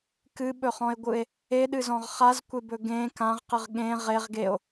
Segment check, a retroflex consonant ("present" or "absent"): absent